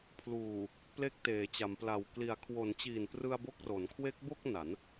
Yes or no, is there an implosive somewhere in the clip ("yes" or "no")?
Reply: no